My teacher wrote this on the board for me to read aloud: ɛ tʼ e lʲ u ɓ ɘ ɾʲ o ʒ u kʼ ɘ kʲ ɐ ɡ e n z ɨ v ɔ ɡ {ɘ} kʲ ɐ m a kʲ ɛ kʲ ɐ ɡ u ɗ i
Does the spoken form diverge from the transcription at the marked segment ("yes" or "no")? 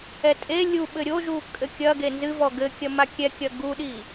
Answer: no